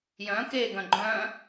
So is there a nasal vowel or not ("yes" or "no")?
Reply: yes